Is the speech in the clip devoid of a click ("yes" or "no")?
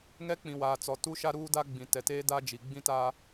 yes